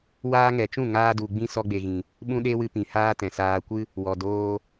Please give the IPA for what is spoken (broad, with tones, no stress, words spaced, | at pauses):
waː˧ŋɛ˨t͡ʃũ˦˨ ŋaː˧du˨ɡ͡bĩ˧ sɔ˧ɡ͡be˨ɣĩ˨ | ɓũ˦ɗe˦wɨ˧pĩ˨ haː˦tɛ̃˨saː˧ kʷɨ˦ | wɔ˨doː˧